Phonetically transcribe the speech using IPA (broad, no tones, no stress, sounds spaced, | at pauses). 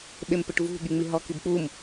ɓ e m p ɘ ʈ v ṳ ɠ i ŋ͡m i ɦ ɔ k i b k͡p u m